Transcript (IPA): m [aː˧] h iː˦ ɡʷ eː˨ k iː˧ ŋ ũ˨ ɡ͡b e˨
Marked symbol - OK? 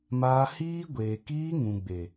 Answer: yes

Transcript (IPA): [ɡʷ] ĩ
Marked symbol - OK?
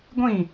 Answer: yes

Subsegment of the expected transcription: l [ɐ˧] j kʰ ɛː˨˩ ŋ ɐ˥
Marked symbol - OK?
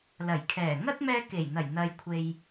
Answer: no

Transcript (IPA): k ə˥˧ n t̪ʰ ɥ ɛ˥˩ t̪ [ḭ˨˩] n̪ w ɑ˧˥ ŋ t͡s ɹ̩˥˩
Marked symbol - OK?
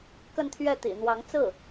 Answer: yes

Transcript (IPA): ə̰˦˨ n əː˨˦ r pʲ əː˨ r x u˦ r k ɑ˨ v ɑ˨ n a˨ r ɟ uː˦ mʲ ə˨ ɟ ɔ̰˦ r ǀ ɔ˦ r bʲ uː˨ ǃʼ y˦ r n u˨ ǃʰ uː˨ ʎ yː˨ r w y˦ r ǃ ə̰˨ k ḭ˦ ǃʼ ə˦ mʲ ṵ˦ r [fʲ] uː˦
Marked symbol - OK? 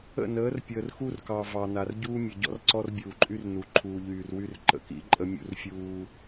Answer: yes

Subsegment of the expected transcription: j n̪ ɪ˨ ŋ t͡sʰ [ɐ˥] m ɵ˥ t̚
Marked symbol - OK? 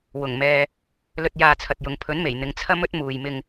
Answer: yes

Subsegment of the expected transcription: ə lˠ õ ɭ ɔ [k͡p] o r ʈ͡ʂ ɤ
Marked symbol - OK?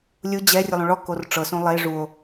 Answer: no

